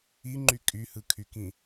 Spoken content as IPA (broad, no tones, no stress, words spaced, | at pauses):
iŋ͡ǃy kʼyhɯkʰykĩ